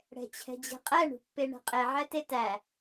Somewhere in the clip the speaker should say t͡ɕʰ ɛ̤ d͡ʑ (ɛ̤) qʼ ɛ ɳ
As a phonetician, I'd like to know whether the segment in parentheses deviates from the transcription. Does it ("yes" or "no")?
no